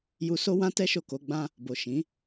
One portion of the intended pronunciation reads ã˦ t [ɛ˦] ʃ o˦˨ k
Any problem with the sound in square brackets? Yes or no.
no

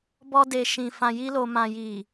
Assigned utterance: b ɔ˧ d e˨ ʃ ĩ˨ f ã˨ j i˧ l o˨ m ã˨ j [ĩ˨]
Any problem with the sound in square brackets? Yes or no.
yes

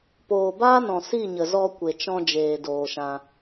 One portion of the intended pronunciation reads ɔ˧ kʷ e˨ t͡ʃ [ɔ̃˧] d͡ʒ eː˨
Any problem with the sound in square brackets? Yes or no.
no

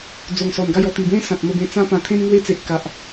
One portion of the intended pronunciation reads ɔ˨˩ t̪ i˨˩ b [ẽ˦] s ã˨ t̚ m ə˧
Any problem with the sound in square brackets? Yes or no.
no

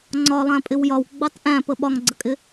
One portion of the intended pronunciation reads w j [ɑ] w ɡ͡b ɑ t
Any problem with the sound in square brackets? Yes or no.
yes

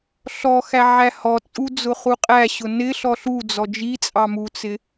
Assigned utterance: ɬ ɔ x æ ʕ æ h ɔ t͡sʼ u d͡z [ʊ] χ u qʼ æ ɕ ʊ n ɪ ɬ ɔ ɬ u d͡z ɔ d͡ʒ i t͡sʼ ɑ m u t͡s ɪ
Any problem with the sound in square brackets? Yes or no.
no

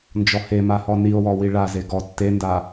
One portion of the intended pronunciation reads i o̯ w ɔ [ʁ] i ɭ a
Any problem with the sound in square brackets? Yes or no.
yes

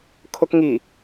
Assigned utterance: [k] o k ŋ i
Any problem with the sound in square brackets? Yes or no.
yes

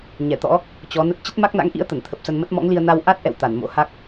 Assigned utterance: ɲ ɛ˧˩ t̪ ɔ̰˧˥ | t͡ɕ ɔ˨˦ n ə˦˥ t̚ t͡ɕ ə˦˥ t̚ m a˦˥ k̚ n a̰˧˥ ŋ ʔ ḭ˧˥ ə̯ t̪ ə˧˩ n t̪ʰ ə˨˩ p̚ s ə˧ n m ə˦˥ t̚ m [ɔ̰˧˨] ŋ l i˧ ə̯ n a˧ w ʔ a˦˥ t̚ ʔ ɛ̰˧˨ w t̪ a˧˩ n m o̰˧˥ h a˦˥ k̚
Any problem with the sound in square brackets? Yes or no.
yes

